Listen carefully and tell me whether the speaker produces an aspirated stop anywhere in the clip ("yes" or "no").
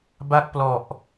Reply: no